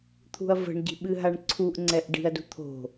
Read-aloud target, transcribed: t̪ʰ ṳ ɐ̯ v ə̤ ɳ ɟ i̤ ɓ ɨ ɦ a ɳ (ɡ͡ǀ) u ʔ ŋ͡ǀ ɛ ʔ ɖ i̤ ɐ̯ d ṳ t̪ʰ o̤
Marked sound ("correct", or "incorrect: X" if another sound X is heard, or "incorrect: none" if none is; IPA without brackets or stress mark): incorrect: ǀʰ